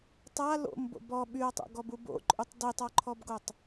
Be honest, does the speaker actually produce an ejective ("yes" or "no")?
yes